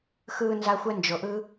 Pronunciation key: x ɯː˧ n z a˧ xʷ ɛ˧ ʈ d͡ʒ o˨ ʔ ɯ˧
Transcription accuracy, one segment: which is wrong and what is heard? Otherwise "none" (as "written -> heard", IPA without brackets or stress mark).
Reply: ʈ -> n